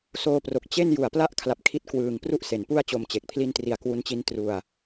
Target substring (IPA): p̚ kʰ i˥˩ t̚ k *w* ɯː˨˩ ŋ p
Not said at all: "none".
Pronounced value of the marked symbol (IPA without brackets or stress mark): w